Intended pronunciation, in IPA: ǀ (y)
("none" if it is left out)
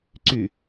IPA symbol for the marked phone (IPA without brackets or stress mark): y